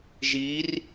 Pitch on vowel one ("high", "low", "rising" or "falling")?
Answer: rising